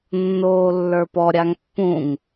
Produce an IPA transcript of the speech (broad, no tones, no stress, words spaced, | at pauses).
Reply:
nːoːlːə˞pɔ ɾʲaŋpːũŋ